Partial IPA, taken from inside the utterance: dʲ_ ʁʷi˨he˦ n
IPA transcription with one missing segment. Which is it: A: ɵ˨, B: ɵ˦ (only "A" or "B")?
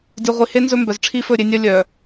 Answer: A